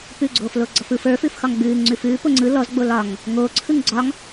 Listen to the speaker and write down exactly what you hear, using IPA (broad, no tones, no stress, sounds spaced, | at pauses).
p ʉ ɡ͡ǀ oː f l o ɡ͡ǀ ɒ f ɯ f ə˞ f ʉ f x ɒ ŋ ɡ͡b ʉː ŋ ŋ͡ǀ ʉ f ʉː p o ŋ͡ǀ ɯ l ɔ z ɡ͡b o l ɒ ŋ | ŋ oː ǀʰ ɯ ŋ ɡ͡ǀ ɒ ŋ